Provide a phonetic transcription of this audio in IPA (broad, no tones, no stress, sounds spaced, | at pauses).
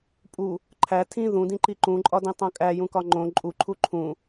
pʼ u | ǃʰ æ tʰ ĩ ð ũ d ĩ ǃ i ǃ ũ ǃʼ ɒ d ĩ tˤ õ kʼ æ j ũ k ɒ ŋ͡ǃ õ ǃʼ u ǃʰ u ǃʰ ũ